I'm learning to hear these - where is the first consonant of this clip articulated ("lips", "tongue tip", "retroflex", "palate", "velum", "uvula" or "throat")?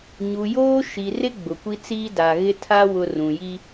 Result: palate